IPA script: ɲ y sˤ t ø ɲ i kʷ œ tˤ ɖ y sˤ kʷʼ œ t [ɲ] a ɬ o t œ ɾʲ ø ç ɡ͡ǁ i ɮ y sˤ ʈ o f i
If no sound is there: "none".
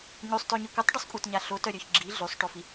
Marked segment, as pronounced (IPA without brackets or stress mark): ɲ